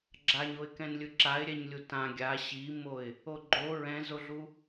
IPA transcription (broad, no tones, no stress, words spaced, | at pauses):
ɡ͡ǁaɲoɪ̯kɛ̃nlʲɯ ǁaɪ̯ ɾʲɛɲlʲutã ɡʲa ɕimoɪ̯ | oɡ͡ǃo ɹɛ̃zoɮu